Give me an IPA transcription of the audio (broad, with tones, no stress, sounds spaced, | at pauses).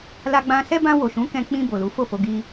l a˧ ɡ͡b ã˧ s ɛ˦ b ã˧ w o˨ ʃ ũ˨˦ k ɛ̃˧ k͡p ĩ˧ b o˨ l u˨˦ f o˦˨ f o˧ ɡ i˦